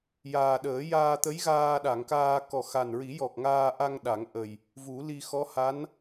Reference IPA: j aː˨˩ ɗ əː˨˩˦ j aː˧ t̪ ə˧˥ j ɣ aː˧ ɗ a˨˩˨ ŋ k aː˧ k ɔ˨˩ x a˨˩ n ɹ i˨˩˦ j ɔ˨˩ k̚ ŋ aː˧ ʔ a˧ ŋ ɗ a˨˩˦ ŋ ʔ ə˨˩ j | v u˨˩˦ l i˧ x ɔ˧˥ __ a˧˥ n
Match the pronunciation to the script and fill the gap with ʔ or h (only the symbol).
h